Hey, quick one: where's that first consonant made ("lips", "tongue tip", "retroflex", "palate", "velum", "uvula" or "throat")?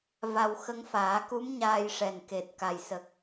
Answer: lips